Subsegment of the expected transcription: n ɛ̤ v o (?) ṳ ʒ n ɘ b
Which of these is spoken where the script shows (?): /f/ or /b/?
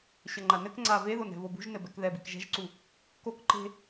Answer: b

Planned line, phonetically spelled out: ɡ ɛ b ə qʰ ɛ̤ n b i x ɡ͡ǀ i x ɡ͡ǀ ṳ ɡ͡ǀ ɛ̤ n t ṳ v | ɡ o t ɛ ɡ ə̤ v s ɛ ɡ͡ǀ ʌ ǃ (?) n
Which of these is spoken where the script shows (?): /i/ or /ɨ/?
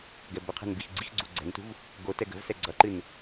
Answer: ɨ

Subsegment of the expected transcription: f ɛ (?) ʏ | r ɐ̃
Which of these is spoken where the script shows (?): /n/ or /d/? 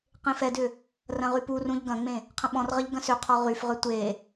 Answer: d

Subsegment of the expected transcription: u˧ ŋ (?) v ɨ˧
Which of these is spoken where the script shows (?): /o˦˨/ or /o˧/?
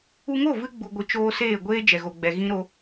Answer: o˦˨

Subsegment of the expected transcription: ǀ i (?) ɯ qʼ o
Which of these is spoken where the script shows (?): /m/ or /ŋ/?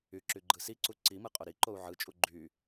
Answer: m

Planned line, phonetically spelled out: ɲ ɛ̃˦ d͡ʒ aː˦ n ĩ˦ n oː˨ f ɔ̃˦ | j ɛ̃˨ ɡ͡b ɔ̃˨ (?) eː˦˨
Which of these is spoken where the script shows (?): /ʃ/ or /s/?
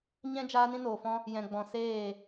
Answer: s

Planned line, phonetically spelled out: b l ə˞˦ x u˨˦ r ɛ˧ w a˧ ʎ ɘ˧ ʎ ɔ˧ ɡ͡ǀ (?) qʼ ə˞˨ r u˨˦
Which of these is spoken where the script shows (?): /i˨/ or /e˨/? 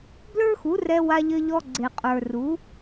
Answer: e˨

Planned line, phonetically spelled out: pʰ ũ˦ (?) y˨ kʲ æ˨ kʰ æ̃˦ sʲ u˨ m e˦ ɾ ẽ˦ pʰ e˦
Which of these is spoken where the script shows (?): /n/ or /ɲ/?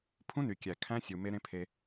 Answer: n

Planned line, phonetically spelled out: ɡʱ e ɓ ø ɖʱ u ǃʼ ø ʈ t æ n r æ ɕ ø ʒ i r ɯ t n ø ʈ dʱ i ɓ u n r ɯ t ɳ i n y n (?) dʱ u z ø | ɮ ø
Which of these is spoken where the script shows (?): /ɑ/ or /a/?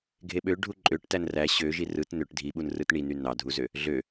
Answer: ɑ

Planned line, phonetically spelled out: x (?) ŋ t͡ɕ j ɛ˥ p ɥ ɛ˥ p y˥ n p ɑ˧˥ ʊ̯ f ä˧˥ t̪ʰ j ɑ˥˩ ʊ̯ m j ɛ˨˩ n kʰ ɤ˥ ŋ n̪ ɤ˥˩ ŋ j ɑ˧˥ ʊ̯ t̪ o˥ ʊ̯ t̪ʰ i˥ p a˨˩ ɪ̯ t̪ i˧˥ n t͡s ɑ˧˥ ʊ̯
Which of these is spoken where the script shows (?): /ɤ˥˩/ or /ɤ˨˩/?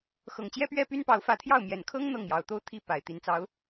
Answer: ɤ˨˩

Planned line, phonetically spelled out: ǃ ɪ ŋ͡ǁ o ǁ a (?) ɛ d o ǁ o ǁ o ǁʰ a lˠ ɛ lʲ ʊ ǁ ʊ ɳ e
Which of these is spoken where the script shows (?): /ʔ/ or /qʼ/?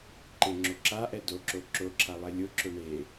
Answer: ʔ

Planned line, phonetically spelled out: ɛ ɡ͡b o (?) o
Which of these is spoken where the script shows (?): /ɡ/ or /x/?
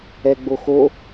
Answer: x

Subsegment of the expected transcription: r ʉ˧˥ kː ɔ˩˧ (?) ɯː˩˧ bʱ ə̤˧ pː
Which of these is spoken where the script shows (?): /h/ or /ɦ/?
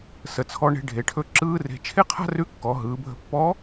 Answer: ɦ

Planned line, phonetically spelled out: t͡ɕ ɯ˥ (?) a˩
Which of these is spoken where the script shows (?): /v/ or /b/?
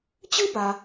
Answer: b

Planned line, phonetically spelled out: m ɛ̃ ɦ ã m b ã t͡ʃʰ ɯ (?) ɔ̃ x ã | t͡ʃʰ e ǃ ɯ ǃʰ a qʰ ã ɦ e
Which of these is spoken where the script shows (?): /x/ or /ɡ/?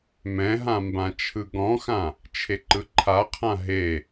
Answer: ɡ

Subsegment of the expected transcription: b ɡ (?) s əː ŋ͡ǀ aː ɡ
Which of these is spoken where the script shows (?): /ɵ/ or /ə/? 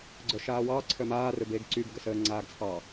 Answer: ə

